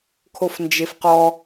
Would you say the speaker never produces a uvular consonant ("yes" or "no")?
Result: no